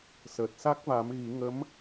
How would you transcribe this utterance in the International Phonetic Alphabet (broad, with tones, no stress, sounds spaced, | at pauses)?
s əː˨˩ t̚ s a˦˥ k̚ v a˨˩˦ m ɣ i˨˩˦ ŋ ə˧˥ m